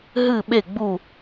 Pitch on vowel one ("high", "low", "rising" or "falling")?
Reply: falling